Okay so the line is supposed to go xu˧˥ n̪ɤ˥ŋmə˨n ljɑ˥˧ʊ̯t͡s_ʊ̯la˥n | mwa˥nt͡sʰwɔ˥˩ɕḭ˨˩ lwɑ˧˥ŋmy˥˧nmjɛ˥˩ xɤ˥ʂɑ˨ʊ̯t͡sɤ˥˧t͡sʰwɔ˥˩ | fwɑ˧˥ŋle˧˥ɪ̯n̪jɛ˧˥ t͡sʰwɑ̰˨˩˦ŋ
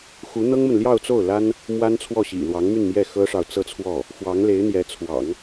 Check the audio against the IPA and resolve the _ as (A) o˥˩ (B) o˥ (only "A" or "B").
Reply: A